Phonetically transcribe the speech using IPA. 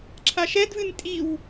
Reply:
ǁʰ a ʃ ɛ d v ɨ n tʼ i w

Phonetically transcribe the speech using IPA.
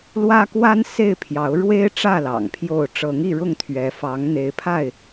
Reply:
l w ä˦ k w a˦ n s e˥˨ ɪ̯ pʰ j ɑ˨˦ ʊ̯ ɻ w e˦ ɪ̯ ʈ͡ʂ ä˥˨ l ɑ̰˨˩ ŋ pʰ j o˥˨ ʊ̯ ʈ͡ʂ ɤ˨˦ ŋ i˥˨ ɻ ʊ˥˨ ŋ t̪ʰ ɥ ɛ˨˦ f ɑ˨˦ ŋ n̪ e˨˦ ɪ̯ pʰ a˥˨ ɪ̯

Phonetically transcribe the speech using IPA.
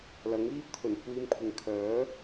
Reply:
l ɐ˨˥ ŋ iː˥ p̚ t̪ʰ ɵ˨˩ n kʷ iː˧ m kʷʰ ɪ˨ ŋ kʰ œː˨˥

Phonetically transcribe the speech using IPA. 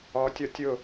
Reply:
ɔ tʲ ɔ tʲ ʊ

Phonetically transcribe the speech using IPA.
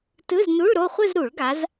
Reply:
t ɯ˧˥˧ z n u˧˥˧ ɭ ɾ o˥˧ χʷ ɯ˥˧ z ɾ u˨˩˦ ɭ ɡ a˨˦ z

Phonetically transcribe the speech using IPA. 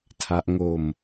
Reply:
tʰ a˦˥ ʔ ŋ o˧ m

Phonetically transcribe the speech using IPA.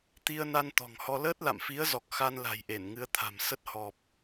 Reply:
t̪ i˧ ə̯ n a˧ n t̪ ɔ̤˨˩ ŋ h ɔ˧ l əː˦˥ t̚ l a̰˧˨ m f i˨˦ ə̯ z ɔ˨˩ k̚ x a˧ n l a̤˨˩ j ʔ e˧˩ n ŋ ɨ˨˦ ə̯ t̪ʰ a̤˨˩ m s ə˦˥ t̚ h ɔ˨˩ p̚

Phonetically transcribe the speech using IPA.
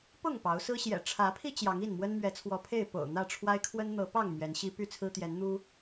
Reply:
p ʊ˥˨ ŋ p ɑ˨˦ ʊ̯ s ɹ̩˦ ɕ j ɛ̰˨˩ ʈ͡ʂʰ ä˨˦ pʰ i˧ t͡ɕ j ɑ˨˦ ŋ i˥˨ n m w ə˦ n m ɥ ɛ˨˦ t͡sʰ w ɔ˨˦ pʰ e˥˨ ɪ̯ p o̰˨˩ ʊ̯ n̪ ä˥˨ ʈ͡ʂʰ w a˦ ɪ̯ kʰ w ə˦ n n̪ ɤ˨˦ p ɑ˥˨ ŋ m ɥ ɛ˨˦ n ɕ i˦ p y˥˨ t͡sʰ ɹ̩˦ t̪ j ɛ˨˦ n n̪ u˦

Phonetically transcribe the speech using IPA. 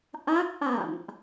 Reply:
ʔ a˦˥ k̚ ʔ a̰˧˨ m ʔ

